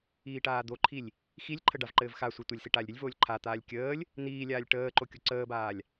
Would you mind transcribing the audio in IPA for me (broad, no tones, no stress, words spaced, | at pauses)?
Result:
iːʈaːd̪oǃʰilʲ | xilʲǃʰə ɖavǃɘːvxasʷi tʷɘlʲsi ʈaːlʲɾʲɘlʲvoːlʲ ǃʰat̪aːlʲ kʲəːlʲ | n̪iːlʲaːlʲ ʈəːǃo kʲoǀəːbaːlʲ